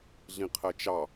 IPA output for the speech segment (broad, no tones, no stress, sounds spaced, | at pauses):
ɮ ĩ qʰ ɜ t͡ʃ ɑ